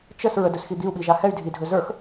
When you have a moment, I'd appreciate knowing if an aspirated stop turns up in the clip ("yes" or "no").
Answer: no